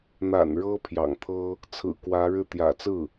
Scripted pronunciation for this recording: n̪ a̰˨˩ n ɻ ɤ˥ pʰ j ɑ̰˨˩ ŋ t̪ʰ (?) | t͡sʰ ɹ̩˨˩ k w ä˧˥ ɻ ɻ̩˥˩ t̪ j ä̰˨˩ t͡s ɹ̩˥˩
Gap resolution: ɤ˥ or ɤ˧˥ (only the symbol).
ɤ˥